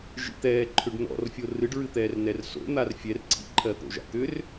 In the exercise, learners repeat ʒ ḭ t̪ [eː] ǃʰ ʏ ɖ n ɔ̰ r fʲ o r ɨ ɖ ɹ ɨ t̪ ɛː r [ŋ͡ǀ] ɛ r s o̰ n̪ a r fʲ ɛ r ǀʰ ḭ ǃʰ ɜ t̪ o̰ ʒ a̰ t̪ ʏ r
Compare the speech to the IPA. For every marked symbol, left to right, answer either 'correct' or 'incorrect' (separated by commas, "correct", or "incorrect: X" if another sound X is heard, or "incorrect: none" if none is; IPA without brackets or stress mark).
incorrect: ɛː, incorrect: n